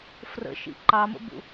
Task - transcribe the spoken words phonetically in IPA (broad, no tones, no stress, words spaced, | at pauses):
frə̰ʃḭ ǃɑmə̰bṵ